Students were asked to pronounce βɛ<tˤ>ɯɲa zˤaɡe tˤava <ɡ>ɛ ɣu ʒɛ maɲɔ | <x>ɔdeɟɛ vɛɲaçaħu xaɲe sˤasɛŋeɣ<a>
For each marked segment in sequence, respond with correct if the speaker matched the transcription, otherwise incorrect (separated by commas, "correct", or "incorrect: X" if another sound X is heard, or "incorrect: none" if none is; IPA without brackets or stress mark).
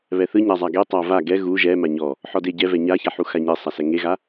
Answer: incorrect: θ, correct, incorrect: ħ, correct